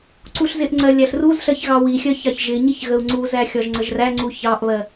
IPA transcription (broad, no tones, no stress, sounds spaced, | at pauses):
ǀ u ɬ z ɪ ʔ ŋ͡ǀ ɜ lʲ æ ɬ r u z ɬ ɜ ç ɣ ɑ w i xʲ ɜ ç ɑ ç ʒ ɪ ɲ i ç ɣ ə u̯ ŋ͡ǀ u z æ xʲ ɒ ʒ ŋ͡ǀ ə ʒ r æ ŋ͡ǀ u ç ɑ ʔ β ɜ